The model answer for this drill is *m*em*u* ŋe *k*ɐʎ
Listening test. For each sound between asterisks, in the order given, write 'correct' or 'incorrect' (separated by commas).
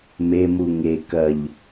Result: correct, correct, correct